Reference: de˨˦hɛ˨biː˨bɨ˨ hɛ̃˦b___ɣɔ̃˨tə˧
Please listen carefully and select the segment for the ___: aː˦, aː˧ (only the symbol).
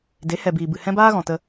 aː˦